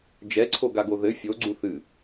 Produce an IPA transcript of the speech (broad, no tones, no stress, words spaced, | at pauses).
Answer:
d͡ʒɛǀʰoɡaɡo ðɘ fʲoɡ͡ǀu θɨ